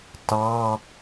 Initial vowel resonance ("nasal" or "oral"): oral